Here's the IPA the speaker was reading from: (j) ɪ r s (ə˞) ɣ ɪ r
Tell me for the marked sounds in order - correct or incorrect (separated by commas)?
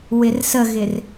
incorrect, incorrect